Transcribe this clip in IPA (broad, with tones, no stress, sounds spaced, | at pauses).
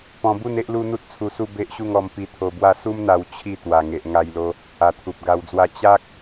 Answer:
p ɔ̃˧ b u˥˧ n e˦ ʔ l u˦ n̪ u˦ t̚ t͡sʰ u˧ s u˥˧ b e˦ ʔ ɕ u˥˧ ŋ ɔ˧ m p i˧ t̪ʰ o˧ b w a˥˧ s u˦ m n̪ a˧ w t͡ɕʰ i˥˧ t̪ w a˨˩ ŋ e˨ ʔ ŋ a˧ j l o˧ | a˨˩ t̪ʰ u˨ p̚ ɡ a˧ w d͡z w a˥˧ t͡ɕ a˦ k̚